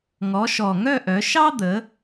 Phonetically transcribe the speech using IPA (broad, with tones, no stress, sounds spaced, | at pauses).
ŋ ɔ˨˦ ʃ ɔ˨˩ ŋ œ˥˧ ʔ œ˨˦ ʃ ɑ˥ d̪ ə˨˦